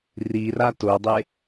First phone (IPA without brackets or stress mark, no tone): r